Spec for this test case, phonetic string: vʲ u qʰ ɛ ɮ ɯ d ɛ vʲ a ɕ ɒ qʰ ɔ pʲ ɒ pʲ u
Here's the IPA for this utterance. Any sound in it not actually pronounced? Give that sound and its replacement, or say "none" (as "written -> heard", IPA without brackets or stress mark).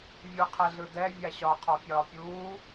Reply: none